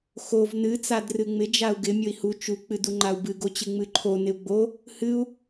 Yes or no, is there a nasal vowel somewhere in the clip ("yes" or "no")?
no